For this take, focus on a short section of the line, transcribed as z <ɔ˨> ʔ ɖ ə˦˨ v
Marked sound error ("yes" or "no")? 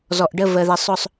no